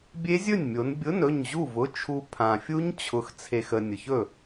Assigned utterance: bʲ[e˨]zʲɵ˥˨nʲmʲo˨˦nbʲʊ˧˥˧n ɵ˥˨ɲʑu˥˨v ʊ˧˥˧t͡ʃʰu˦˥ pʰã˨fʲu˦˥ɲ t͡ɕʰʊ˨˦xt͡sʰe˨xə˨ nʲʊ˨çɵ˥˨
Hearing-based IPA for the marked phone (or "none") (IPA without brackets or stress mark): e˦˥